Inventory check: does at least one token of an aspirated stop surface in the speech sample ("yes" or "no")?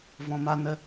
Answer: no